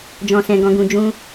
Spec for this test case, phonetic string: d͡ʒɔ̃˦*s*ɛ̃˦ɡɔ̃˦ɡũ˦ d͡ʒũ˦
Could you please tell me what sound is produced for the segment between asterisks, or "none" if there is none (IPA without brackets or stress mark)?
s